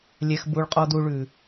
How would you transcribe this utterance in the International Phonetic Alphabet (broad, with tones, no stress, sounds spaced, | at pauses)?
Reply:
lʲ ɛ˧ x b u˧ ɭ qʼ ɔ˦ d u˧ ɭ ʉ˨